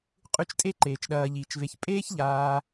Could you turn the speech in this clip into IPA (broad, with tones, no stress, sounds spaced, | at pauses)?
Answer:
qʼ ʉ˦ t͡ʃ tʼ e˥ ǃ eː˩ t͡ʃ ɗ ɐː˨ ʎ iː˩ t͡ʃ v e˨ ç pʼ eː˥ ç ʎ aː˨